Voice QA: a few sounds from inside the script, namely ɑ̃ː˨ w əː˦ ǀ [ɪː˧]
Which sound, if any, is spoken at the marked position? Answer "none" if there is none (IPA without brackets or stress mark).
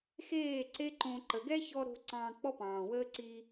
iː˧